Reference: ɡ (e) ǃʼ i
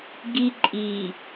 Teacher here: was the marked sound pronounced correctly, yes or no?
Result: no